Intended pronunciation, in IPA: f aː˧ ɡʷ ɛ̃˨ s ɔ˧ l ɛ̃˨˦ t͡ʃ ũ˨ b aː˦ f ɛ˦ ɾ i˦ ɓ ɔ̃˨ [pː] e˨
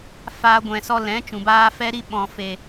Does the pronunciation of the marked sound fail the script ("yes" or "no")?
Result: yes